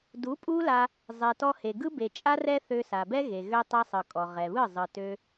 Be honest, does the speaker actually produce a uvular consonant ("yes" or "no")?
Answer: yes